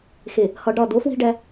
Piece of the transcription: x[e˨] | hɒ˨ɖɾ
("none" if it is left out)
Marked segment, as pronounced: e˨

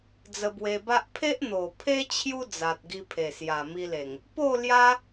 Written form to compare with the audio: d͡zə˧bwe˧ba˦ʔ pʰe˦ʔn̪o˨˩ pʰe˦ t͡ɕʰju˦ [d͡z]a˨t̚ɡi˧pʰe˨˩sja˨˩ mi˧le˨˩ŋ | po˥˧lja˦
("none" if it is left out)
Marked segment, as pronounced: d͡z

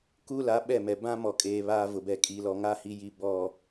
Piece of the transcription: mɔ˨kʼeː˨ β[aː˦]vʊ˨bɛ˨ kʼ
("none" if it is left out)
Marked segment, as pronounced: aː˦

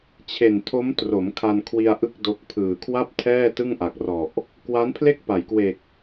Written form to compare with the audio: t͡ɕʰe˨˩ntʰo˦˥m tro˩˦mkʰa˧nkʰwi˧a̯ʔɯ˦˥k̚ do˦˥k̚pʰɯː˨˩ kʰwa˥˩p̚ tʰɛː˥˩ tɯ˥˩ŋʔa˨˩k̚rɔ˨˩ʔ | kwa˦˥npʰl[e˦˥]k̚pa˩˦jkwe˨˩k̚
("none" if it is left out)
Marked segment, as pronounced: e˥˩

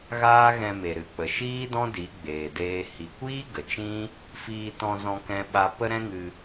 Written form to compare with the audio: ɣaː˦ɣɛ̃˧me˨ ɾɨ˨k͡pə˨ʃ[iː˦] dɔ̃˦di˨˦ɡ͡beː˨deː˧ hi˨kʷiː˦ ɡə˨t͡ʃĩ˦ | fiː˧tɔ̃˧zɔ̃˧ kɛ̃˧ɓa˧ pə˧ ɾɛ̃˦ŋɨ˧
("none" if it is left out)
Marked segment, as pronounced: iː˦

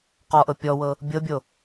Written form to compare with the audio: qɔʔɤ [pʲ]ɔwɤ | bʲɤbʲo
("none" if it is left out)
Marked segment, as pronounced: pʲ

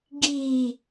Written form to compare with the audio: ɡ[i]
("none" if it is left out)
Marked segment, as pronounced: i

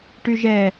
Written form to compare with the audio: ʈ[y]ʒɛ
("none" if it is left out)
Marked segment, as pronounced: y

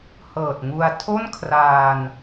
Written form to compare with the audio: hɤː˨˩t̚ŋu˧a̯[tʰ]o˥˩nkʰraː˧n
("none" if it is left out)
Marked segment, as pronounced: tʰ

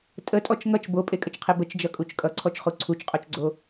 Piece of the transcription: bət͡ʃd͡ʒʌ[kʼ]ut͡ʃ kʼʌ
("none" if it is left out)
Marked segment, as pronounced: kʼ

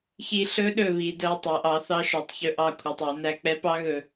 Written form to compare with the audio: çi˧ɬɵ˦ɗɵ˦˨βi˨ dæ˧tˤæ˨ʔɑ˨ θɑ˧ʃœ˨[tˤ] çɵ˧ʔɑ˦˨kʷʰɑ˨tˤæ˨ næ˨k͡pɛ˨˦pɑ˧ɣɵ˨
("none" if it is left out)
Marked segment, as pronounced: tˤ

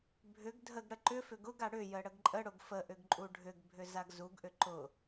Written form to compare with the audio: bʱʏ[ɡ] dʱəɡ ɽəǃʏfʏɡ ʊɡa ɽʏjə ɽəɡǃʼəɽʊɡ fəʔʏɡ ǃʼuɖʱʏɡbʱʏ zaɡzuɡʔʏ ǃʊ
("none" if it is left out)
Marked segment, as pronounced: ɡ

